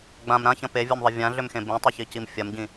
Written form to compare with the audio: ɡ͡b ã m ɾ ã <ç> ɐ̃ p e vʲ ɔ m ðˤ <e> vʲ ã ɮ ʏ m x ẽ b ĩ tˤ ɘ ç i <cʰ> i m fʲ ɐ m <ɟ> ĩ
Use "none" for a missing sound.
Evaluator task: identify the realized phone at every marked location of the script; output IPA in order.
ç, ɘ, c, ɟ

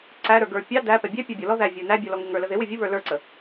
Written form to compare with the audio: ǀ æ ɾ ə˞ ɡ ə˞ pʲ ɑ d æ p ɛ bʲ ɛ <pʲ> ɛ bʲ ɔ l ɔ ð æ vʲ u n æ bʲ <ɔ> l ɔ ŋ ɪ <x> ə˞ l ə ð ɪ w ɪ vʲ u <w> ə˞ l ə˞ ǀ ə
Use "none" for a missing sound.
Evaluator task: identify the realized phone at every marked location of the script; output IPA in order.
pʲ, ɔ, ŋ, β

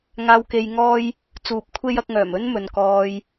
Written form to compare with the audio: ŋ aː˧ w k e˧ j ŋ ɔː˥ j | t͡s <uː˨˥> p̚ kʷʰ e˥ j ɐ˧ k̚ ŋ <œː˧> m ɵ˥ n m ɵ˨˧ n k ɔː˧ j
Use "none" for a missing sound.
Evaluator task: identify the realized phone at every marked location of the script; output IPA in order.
uː˨˥, œː˨˩

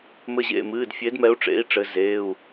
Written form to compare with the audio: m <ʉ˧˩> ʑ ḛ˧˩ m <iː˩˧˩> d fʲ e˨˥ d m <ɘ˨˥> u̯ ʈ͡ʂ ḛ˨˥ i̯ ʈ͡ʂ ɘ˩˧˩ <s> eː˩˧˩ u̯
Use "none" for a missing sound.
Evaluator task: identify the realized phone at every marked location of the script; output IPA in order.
ɘ˧˩, ɨː˩˧˩, ɛ˨˥, z

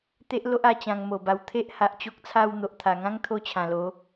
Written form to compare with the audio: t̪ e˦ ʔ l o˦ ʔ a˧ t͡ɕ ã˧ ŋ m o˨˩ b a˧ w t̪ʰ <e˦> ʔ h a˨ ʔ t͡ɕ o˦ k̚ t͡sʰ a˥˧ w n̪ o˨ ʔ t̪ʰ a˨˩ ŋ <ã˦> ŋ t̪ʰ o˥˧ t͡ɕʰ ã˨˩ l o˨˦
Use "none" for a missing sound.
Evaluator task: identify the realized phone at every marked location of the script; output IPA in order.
e˦, ã˦

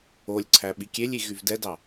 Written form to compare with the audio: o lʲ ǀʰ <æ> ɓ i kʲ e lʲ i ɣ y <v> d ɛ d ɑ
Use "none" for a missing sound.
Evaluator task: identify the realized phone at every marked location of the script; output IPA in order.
æ, v

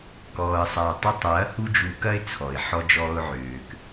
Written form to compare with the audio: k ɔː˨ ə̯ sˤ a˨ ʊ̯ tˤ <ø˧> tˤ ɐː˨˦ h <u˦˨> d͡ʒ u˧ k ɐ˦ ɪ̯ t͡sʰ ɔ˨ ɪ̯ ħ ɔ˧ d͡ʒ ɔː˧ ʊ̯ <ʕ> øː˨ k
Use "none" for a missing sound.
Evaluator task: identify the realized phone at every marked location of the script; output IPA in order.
u˧, u˦, ʕ

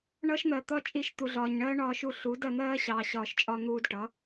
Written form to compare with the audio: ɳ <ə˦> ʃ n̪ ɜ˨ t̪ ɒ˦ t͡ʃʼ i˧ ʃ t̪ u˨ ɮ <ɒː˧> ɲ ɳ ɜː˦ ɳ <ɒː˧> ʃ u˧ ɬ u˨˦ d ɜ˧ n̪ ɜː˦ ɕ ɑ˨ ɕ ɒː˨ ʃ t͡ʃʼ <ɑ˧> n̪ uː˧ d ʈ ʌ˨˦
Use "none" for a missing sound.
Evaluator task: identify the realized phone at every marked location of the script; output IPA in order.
ʌ˦, ɒː˨, ɒː˧, ɒ˧

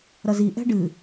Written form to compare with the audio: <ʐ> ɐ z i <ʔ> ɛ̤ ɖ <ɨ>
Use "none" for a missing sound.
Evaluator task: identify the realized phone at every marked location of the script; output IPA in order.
ɾ, ʔ, ɨ

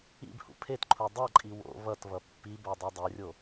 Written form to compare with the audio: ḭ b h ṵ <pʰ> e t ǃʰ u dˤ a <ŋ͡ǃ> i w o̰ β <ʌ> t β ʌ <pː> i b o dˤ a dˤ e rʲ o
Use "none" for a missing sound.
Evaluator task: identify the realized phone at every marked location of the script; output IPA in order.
pʰ, ǃʼ, ʌ, pː

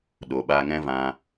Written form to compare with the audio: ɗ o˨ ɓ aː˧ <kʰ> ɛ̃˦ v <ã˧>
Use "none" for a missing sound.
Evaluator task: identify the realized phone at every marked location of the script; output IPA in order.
ŋ, ã˧

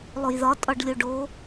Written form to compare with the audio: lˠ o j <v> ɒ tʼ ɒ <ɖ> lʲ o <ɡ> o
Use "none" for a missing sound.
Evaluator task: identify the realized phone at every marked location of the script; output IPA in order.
ð, ɖ, ɖ

